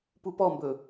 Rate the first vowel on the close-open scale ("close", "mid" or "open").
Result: close